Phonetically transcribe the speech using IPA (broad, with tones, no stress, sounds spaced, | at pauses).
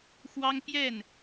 x w ɑ˥ ŋ p j ɛ˥˩ n